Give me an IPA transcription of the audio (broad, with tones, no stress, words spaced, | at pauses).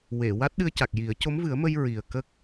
we˨˩˨ wa˦˥t̚ɗɨ˧ə̯ca˨˩k̚ji˨˩˦ə̯ co˧˥mvɨ˨˩˦ə̯mə˧j ɹi˨˩ə̯ kə˦˥k̚